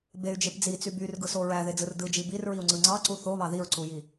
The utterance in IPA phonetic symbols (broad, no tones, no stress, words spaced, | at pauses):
bey̯d͡ʒep d͡zit͡sy byrɡɯso ɹæðed͡zɯr dɯd͡ʒi birɹiu̯ŋ͡ǀɯ ŋ͡ǀɑǀu θoβɑ ðiɹǀuji